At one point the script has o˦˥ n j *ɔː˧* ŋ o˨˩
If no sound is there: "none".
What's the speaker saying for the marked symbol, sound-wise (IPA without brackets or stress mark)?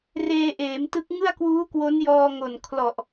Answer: ɔː˧